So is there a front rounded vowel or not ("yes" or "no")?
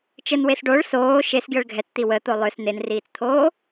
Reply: yes